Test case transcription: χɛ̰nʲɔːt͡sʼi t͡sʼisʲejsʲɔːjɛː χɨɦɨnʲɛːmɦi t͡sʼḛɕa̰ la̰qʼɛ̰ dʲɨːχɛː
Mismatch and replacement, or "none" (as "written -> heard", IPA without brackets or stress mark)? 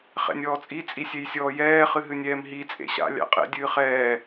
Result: l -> lʲ